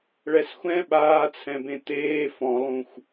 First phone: ɭ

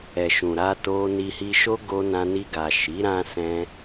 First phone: ɛ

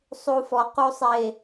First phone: sˤ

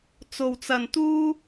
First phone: t͡s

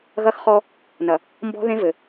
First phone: ɣ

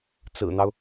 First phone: t͡s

